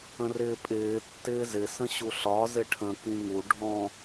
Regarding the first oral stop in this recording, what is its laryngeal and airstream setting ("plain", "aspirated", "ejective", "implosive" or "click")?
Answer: ejective